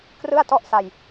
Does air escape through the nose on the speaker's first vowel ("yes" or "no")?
no